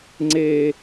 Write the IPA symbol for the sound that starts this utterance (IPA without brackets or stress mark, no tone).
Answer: ŋ͡ǀ